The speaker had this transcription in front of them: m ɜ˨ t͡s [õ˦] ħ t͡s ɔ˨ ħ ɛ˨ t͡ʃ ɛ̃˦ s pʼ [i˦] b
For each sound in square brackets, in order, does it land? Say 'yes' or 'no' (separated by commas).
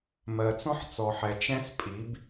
no, no